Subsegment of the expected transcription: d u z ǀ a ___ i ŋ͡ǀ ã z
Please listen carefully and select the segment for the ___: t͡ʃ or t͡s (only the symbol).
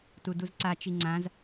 t͡ʃ